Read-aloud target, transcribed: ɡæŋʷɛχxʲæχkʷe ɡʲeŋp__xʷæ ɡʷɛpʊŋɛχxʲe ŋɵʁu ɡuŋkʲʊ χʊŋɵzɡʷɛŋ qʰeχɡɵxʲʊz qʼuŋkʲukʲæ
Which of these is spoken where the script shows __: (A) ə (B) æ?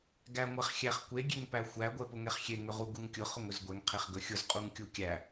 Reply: B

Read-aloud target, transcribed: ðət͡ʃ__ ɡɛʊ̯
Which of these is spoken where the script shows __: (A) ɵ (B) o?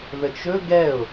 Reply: A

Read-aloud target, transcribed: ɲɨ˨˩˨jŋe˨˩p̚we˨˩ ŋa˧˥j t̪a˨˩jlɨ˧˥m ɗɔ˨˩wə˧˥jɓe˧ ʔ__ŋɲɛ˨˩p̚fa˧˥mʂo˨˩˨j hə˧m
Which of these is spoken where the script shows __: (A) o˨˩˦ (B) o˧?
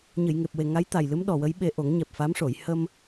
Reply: A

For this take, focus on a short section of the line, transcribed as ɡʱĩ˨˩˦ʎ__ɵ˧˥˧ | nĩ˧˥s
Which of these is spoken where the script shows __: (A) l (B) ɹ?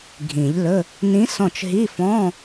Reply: A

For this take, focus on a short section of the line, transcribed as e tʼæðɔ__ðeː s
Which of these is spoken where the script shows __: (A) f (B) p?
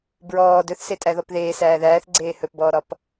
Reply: B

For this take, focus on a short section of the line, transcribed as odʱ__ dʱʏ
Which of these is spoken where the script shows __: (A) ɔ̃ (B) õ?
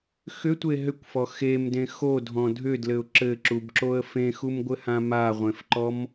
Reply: A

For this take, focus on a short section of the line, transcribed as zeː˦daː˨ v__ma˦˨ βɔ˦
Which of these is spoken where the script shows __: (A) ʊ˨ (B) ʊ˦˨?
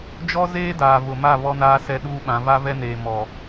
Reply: A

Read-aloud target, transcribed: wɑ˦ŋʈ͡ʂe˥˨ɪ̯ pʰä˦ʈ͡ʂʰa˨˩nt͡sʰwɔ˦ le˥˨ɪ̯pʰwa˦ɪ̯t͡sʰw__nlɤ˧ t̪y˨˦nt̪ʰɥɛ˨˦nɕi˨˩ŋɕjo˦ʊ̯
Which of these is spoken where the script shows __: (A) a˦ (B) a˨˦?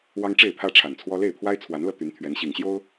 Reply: B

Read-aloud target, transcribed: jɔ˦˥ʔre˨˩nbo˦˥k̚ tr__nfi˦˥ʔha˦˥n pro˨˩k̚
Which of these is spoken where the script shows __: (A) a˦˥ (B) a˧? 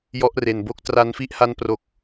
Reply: B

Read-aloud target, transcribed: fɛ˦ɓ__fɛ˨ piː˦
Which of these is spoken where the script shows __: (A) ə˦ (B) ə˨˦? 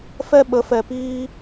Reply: B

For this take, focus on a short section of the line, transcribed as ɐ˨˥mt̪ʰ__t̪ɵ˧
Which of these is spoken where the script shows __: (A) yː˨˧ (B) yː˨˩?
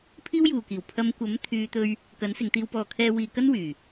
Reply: A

